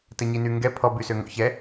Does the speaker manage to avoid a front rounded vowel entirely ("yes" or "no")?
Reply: no